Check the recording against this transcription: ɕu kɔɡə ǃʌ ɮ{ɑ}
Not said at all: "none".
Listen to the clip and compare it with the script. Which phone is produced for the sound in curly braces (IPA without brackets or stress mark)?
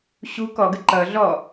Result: ɔ